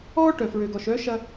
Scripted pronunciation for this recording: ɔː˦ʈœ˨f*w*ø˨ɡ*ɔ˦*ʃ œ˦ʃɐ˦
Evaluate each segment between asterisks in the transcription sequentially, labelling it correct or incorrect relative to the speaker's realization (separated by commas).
incorrect, incorrect